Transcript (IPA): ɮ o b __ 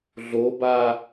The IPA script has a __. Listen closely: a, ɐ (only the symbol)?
a